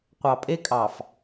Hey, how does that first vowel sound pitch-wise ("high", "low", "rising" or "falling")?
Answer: low